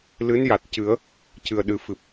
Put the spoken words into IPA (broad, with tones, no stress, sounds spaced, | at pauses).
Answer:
l ɨ˧˥ n j a˨˩ t̚ c ɨ˨˩˦ ə̯ | c ɨ˨˩ ə̯ ɗ ɨ˨˩ f ɨ˨˩ p̚